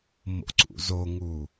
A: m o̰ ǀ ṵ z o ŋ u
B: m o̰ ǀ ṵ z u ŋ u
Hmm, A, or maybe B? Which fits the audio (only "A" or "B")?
A